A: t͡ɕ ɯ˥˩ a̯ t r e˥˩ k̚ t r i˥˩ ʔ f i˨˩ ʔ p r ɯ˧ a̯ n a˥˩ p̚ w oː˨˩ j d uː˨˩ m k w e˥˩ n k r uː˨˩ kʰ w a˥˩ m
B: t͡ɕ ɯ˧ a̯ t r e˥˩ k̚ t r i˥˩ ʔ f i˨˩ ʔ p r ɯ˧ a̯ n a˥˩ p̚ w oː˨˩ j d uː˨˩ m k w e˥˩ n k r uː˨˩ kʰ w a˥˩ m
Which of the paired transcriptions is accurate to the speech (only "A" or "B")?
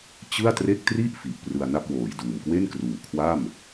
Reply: A